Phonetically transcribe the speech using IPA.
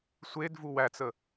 sʷedvu wæt͡sə

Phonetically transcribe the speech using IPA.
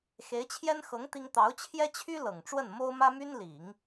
xe˧˥ɪ̯t͡ɕʰjɛ˥n xɤ˧˥ŋ t̪i˥ŋ t̪ɑ˧˥ʊ̯t͡ɕʰjɛ˥t͡ɕʰy˥ lɤ˨˩ŋʈ͡ʂwə˥˩n mo˥ʊ̯mä˥my˥n li˨˩˦ŋ

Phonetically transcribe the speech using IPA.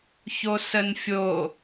çosənfʲo

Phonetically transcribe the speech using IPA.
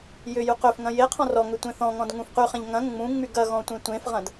jʏ juqʏfŋɐ̃ je qʰɔ̃rɔŋʏ tʷẽθɔ̃ŋɔ̃d ŋũfqyχɛ̃ʎ ŋɐ̃ ŋ͡mũŋ͡myɡ ɐɣɔ̃ tʷẽtʷẽfʁɐ̃d

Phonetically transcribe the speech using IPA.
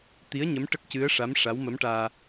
t̪i˧˥ə̯ɲə˧˥m ʈə˦˥k̚cɨ˧˥ə̯ʂa˧˥m ʂa˧˥wmə˧˥mʈaː˧

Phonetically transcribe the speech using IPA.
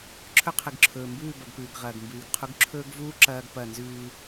ǁʰɵ˦qʰɨ˨ɡǁʰɵː˨mbʉː˦˨ bɐ˨ɡpʉː˨ɡ ʁɐː˨ɡmbʉː˨ɡqʰu˦ɡ ǁʰɵː˦ɡvuː˦ ǁɐː˦ɡpɐ˦˨ nzʉː˦

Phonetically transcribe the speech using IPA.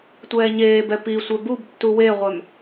tʷɛːɲeːbɛ pisʷœ bub tːuweʁʷœm

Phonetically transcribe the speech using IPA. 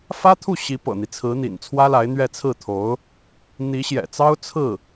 fä˥t̪ʰu˥˩ ɕi˧˥ pɤ̰˨˩n̪i˦t͡sʰɹ̩˧˥ n̪ḭ˨˩nt͡sʰwä˥la˧˥ɪ̯n̪ɥɛ˥˧ t͡sʰɹ̩˥˩t̪ʰo˧˥ʊ̯ | n̪i˧˥ɕjɛ̰˨˩t͡sɑ˥ʊ̯ t͡sʰɹ̩˥˩

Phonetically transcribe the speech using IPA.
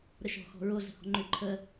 ɾəʃɔ̤ xɔ̤ɹo ɮə̤hɔ̤ŋ͡ǃʏ ǃʰə

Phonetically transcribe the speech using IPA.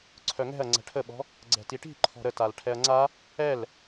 ǀʰœŋɛ̤ɐ̯ ŋ͡ǀɛ̤ʈʰəɓɔ̤ | ɡ͡ǀɛ̤tiʈi̤ ǃʰɔ̤ɾətal ʈʰɛɐ̯ŋ͡ǀa | ɛl

